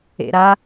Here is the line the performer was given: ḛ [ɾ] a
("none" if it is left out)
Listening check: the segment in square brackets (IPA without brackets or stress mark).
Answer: ɾ